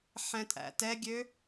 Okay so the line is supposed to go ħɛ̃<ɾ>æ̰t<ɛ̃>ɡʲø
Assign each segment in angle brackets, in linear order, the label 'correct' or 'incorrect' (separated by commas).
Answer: incorrect, incorrect